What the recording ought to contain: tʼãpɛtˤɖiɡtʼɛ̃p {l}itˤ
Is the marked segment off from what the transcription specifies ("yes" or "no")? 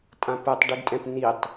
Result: yes